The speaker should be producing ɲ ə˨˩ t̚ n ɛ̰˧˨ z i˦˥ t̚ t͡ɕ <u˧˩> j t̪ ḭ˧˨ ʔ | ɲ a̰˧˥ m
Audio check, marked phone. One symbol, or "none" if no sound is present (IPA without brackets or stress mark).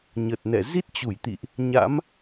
u˧˩